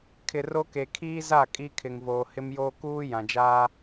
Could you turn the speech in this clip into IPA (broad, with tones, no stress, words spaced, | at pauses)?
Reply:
kʰɪ˨ro˦ke˨ kʰiː˦ za˦˨ kʼi˦kʰɪ˨ŋvoː˨ hɪ˦mjoː˦ kuː˦ jã˨d͡ʒaː˦